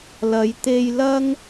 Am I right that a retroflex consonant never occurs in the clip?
yes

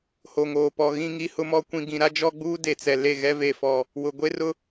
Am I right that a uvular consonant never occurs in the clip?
yes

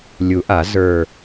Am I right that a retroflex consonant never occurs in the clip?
yes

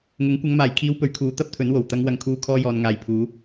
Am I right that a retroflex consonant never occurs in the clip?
yes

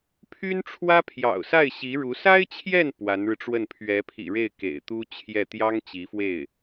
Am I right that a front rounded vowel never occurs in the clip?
no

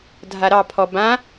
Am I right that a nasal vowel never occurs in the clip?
no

